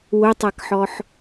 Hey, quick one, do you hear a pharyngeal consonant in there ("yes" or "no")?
yes